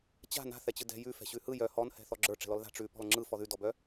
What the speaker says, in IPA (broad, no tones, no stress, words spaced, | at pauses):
t͡ɕa̤ na̤θɛt͡ɕɯ dɛ̤ jʉ fɛ̤ɕʉhɯ jœ hɔnhɛ̤ θɔɡ͡ǁə˞ ʈ͡ʂɛ̤lɔlða̤ ʈ͡ʂʉ pɔ̤lŋ͡ǁɯ fɔðʉdɔbœ